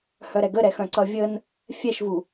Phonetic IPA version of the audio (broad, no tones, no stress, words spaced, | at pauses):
hœɾɛɡəɾɛ xœ̃ǀʌvʲən | fʲɛʃvu